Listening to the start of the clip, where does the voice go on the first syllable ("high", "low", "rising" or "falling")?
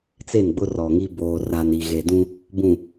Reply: falling